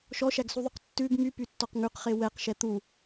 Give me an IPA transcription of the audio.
ʃ ɔ ʃ æ ɡ s u ðˤ y q tː ʉ ɡ m y p y tː ɔ q ŋ ʉ q χ e w ɛ q ʃ ɛ t̪ u

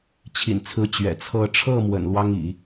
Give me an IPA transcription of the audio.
t͡ɕʰ ḭ˨˩ n t͡sʰ ɹ̩˧˥ t͡ɕ ɥ ɛ̰˨˩ t͡sʰ ɤ˥˧ ʈ͡ʂʰ ɤ˥˩ m w ə̰˨˩ n l w ɑ˥ ŋ ḭ˨˩˦

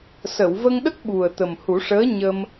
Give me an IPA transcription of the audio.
s ə˨˩˨ w v ə˧ ŋ ɗ ə˦˥ k̚ ɓ u˨˩ ə̯ t̪ ə˨˩ m h u˨˩˦ ʂ əː˧˥ ɲ ə˧ m

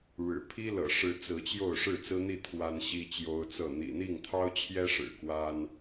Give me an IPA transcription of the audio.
ɻ ɻ̩˨˩ pʰ i˦ l ɤ̰˨˩ ʂ ɻ̩˨˦ t͡s ɹ̩˨˦ t͡ɕ j o˥˨ ʊ̯ ʂ ɻ̩˥˨ t͡s ɹ̩˦ n̪ i˥˨ t̪ʰ w a˦ n ɕ i˦ t͡ɕ j o˦ ʊ̯ t͡s ɤ˥˨ n̪ ḭ˨˩ n̪ i˥˨ ŋ t̪ʰ ɑ˦ ʊ̯ t͡ɕʰ j ɛ˦ ʂ ɻ̩˨˩ k w a˦ n

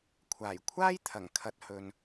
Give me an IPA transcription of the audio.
kʷʰ aː˨˩ j kʷʰ aː˥ j t̪ʰ ɐ˨˩ ŋ kʰ ɐ˨˥ t̚ h ɵ˨ n

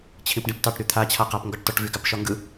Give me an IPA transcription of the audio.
t͡ɕʰ ĩ p ɖ ĩ p t ɑ ʈ ɾ y t̪ʰ a t͡ɕʰ a q a p ŋ ɡ ɒ ʈ t ɒ ʈ v y ɡ a p ʃ ɒ ŋ ɡ ɯ

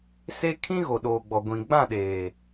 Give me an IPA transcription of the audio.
s e˦ kʰ ĩ˦ ɣ o˨ ɗ oː˨ ɡ͡b ɔ˨ ɡʷ ĩ˨ ɡ͡b ã˦˨ ɗ eː˨

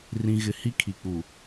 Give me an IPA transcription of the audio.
r ĩ˨ ɣ ɪ˨ h i˦ kʰ i˨ k͡p u˨

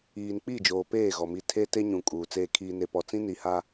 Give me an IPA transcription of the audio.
iː˨ n k͡p i˦˨ d͡ʒ oː˨ p eː˦˨ ɣ ɔ˨ m i˨ tʰ e˦ t e˦ ɲ ũ˨ kʼ uː˨ t͡s eː˦ kʰ iː˦ n e˦ p ɔ˦ t͡s ĩ˦ n i˨ h a˦

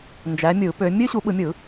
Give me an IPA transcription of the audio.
n d͡ʒ æ˨˦ mʲ ɯ˨˩˦ p ø˨˦ mʲ ø˥ ɕ u˨˦ ɓ ɯ˨˩˦ mʲ ɯ˨˩˦

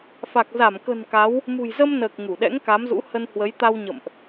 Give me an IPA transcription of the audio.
f a˨˩ k̚ z a˧˩ m k ə̤˨˩ n k a˨˦ w | m ṳ˨˩ j z ə˧ m n əː˨˩ k̚ ŋ u˧˩ ɗ ɛ̰˧˥ ŋ k a˨˦ m z ṵ˧˥ h ə˧ n h w ə˨˦ j t̪ a˧ w ɲ ə̰˧˨ m ʔ

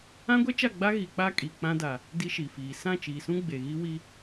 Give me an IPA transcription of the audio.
ã˦ ɡʷ ɛ˦ t͡ʃ a˦˨ ɡ͡b a˦ ɣ i˨ k͡p a˦ kʼ i˨ k͡p ã˦ d a˨ | d i˦ ʃ i˨ f iː˨ s ã˦˨ t͡ʃ iː˨ s ũ˦ ɡ͡b e˨ ɣ i˦ w i˦

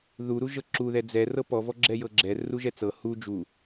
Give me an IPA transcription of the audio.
ð u ɾ u ʒ ɤ ǁ u ð ɛ d͡z ɛ r ɤ p ɔ v ɔ ɡ͡ǁ ɛ j ɤ ɡ͡ǁ ɛ r u ʒ ɛ t͡s ɤ h u d͡ʒ u

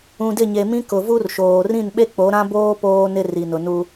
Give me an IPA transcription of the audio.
ũ˨ d ɪ˦˨ ɲ e˨ m ĩ˦ k ʊ˨ v u˦ r ʃ oː˨ r ĩ˦˨ n ɓ e˦ k͡p o˨˦ ɾ ã˦ b oː˦ p oː˦ n ɪ˦ r i˨ n ʊ˨ n u˦

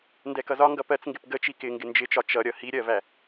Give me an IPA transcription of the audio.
n d ɛ k ʌ z ɒ ŋ ɡ ʌ p ɜ t͡s ŋ ɡ ɪ p ɡ ə t͡ʃ i k ɪ ŋ ɡ ɪ n d͡ʒ ɪ t͡ʃ ɒ t͡ʃ ʌ ɾʲ ʌ h i ɾʲ ɜ v æ

